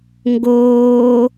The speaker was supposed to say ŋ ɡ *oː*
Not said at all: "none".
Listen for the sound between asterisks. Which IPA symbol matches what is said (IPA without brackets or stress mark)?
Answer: oː